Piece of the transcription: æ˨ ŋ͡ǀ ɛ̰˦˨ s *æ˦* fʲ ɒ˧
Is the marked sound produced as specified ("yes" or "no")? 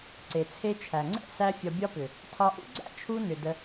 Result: yes